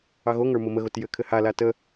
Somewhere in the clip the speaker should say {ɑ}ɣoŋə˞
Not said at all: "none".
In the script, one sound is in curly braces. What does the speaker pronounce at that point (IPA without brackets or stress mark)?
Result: ɑ